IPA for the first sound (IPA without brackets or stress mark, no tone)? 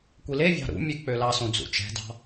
kʷ